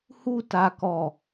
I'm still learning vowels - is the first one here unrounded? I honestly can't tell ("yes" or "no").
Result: no